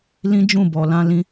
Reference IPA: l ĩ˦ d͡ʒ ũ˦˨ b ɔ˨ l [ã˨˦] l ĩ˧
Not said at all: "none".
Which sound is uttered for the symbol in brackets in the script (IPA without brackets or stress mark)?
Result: ã˧